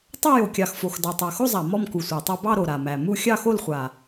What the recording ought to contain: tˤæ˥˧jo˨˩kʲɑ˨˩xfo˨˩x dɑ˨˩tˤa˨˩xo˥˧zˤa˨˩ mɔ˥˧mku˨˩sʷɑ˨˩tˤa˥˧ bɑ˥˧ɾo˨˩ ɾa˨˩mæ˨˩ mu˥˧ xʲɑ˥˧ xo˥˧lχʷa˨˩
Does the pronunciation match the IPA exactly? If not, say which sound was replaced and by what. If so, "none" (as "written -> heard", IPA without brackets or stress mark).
none